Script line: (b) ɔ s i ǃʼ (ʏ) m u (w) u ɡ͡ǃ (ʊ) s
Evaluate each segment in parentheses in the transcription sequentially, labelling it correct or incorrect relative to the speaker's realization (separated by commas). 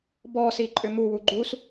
correct, correct, correct, incorrect